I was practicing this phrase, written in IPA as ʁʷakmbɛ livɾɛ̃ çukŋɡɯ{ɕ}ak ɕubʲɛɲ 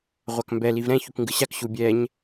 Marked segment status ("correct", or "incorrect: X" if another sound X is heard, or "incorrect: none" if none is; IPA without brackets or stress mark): correct